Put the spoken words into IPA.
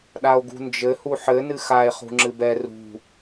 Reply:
ɗ a o̯ ɡ ṳ n d͡ʒ ɘ h u ħ ɘ n ɨ x a e̯ χ ṳ ŋ͡ǁ ɨ b ɛ r ṳ

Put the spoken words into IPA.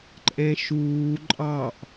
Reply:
ǃʼ ɛ̃ ʃ uː ǃʼ ɑ ʔ

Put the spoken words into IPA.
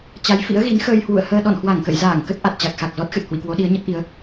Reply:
t͡ɕ a˨˦ j f ḭ˧˥ ə̯ ɣ i˨˦ n x əː˧ j h w ṵ˧˨ ə̯ h əː˧ ɗ ɔ̰˧˨ n h w a˧˩ ŋ k ə̰˧˨ j z aː˧˩ ŋ k ə˦˥ t̚ ʔ a˨˩ t̚ t͡ɕ a˨˩ k̚ x a˨˩ k̚ z ɔ˦˥ t̚ x ɨ˨˩ t̚ h w ḭ˧˨ k w o˨˦ ɗ i˨˦ ə̯ ɲ ə˦˥ t̚ ʔ i˨˦ ə̯

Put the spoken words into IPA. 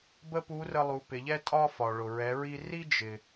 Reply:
b ə˥ p u˧˥ r ə˧ lˠ u˩˧ p ɪ˩˧ ʎ ɛ˥ tʼ ɒ˥ f ɒ˩ ɭ ʊ˩ ɹ ɛ˩˧ ɹ i˧ r i˥ d͡ʒ ɪ˩

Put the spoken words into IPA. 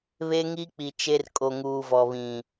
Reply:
β e˦ ŋ i˦ k͡p i˨ t͡ʃ e˦ r kʼ o˨ ŋ uː˨ v ɔ˨ β ĩ˨

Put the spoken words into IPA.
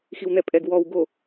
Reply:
x i w n̪ ɛ pʼ ɛ ɡ w ɔ w ɡ o

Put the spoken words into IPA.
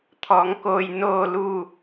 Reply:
t̪ʰ ɔː˩˧ ŋ k oː˩ j n oː˧˩ l uː˧˩

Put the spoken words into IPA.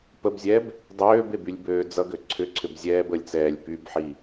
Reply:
p ə b zʲ ɛ b | dˤ øː b e b y lʲ b øː d͡z ʌ ɡ ø ǀʰ ʏ ǀʰ ʏ b zʲ ɛː b ə lʲ t͡s ɛː lʲ p y b ħ i

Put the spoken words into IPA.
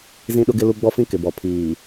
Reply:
z ĩ˦ ɗ ʊ˦ ɡ ɪ˦ l u˦ ɡ͡b ɔ˦ f ĩ˦ k ɪ˨ b ɔ˨ pʰ iː˨

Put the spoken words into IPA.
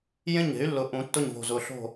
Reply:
j ẽ˥˨ ɲ e̤˨˥ y̯ lː ʊ˧˩ ʔ ũ˨˩˦ tː ʊ˧˩ ɲ v o̤˧˩ z ʊ˧˩ ɬ o̤˥˨

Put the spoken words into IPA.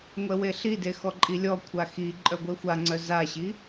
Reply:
ŋʷ ɛ w e ɬ i d e x ɔ ǃʼ i lʲ ɔ kʷʰ a x i ǃʼ œ ɡʷ ɛ xʷ a ŋ͡ǀ œ z a ɕ i

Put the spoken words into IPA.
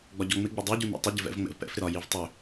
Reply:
ɡ͡b ɒ ɟ ɔ ŋ͡m ɪ ɡ͡b ɪ dˤ ɪ ɟ u n ḭ tˤ ɪ ɟ ɪ v ɛ̰ v ŋ͡m ɛ̰ v p ɛ̰ f ɾ ɪ ɾ ɒ j i v tˤ ʏ

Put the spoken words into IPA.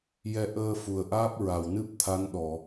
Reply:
j ɛ˧ ʔ əː˧ f u˨˩ ə̯ ʔ aː˦˥ p̚ ɹ a˨˩ w n ɨ˦˥ p̚ t̪ʰ a˧˥ n ɗ ɔ˨˩˨

